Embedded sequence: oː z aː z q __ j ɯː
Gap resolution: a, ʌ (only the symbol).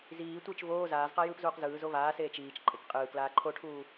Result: a